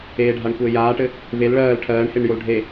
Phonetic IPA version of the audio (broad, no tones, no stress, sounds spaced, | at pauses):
eː ɖʱ a ɳ kʷ ɘː j aː ʈ ɘ | v e l ɭ ɜː l ʈʰ ɜː ɳ h e ɳ j o l ɖʱ e